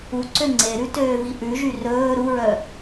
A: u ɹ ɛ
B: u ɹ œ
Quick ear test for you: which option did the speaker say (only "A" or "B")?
B